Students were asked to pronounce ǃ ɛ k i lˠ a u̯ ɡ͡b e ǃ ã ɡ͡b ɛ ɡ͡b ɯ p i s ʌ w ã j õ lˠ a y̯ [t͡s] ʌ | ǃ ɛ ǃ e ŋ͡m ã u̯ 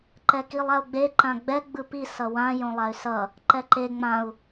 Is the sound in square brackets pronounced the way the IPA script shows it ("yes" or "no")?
no